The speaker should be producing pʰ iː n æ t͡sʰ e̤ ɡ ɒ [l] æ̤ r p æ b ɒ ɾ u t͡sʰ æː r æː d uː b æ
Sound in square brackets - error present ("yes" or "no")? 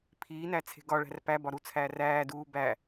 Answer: yes